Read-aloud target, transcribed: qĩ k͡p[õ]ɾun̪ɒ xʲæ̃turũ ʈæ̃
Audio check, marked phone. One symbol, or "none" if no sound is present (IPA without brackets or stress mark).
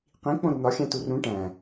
õ